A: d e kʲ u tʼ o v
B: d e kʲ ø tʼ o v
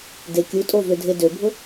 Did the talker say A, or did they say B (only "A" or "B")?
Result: A